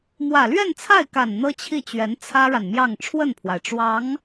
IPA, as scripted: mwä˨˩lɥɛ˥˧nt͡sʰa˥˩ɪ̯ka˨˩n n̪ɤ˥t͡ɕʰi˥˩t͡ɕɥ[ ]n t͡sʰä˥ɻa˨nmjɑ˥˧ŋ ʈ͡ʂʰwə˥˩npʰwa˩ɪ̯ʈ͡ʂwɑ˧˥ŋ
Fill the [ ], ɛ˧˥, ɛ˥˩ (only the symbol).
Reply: ɛ˧˥